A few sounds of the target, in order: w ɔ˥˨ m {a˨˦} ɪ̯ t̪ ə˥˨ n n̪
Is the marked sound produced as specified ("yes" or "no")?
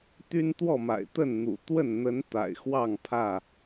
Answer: no